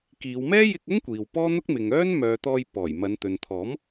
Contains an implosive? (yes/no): no